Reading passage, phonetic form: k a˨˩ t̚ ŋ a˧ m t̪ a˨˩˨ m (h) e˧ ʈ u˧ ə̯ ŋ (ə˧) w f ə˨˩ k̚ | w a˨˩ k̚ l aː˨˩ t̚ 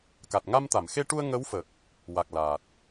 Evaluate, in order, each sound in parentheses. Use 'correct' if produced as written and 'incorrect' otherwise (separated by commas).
incorrect, incorrect